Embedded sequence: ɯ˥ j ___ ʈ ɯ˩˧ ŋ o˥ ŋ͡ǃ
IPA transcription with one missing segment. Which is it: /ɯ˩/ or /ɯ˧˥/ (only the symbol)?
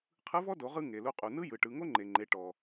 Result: ɯ˩